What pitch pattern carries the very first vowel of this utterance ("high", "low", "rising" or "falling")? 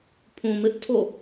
low